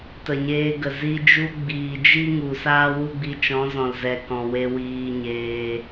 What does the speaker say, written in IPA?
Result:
tə˨ɲeː˧ɡə˨ zi˧ d͡ʒu˧ ɡ͡biː˨ d͡ʒi˦ ŋu˨saː˦wu˦ɡ͡bi˧ t͡ʃɔ̃˨˦zɔ̃˨lzɛ˨ kɔ̃˨we˧wiː˧ɲeː˧

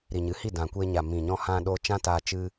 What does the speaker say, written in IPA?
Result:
ɾi˨ɲɨ˨˦hi˦˨ dã˨kʷeː˧ɲa˨ mĩ˨ɲɔ̃˧hã˧ ɗo˧t͡ʃã˦taː˧ t͡ʃɨ˦

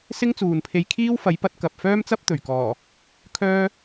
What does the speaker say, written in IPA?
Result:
sɪ˥ŋt͡suː˨npʰe˧j kʰiː˥wfɐ˨˥jpɐ˨˥t̚ kɐ˨p̚ fœː˥mt͡sɐ˥p̚t̪ɵ˨˩ɥ kɔː˨˩ | kʰœː˥

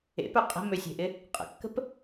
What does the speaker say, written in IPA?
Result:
ḛpœ qʼə̤møsʲe̤ʔɪ | qʼə̰kːə̤p

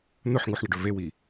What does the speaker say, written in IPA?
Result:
n̪ɵħŋuħɳɐɖɵ vewi

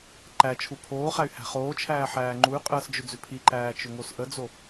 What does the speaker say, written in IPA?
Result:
ǃæt͡ʃʰu pʰoːχæy̯ hæ̤χoːt͡ʃʰæː ħæːŋ͡ǃuy̯qʼəːs d͡ʒʏd͡zʏpʰiǃæː t͡ʃʏŋosʔəd͡zo

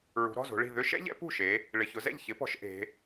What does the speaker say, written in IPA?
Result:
ɹṳ˩˧ɾɔ̤˩˧˩zo̤˩˧ɭi̤˧˩ ðʏ˦˥ʃɛ̰˦˥ʎɛ̰˨˥ pṳ˥˩ʃe˩˧ | ɭɪ˩˧˩çʊ˩˧zɛ̰˥˩ʎ çɪ˨˥pɔ̤˩˧ʃ ʔe̤˩˧

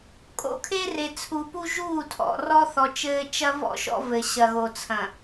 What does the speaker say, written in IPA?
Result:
kʼo̰˦kʰe˦re˨t͡sʰu˨ pu˦ʒuː˦˨tʰɔ̰˨ rɔ˦θɔ˨ t͡ʃɘː˦ t͡ʃɐ˦vɔ̰˦ʃɔ̰˦ vɘ˨ɕɐ˨ɣo˨ t͡sʰɐ̃˨

